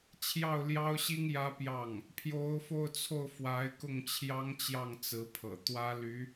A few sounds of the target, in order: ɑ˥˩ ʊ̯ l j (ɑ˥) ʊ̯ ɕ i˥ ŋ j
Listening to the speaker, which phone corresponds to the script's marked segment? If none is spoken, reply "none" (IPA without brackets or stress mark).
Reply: ɑ˥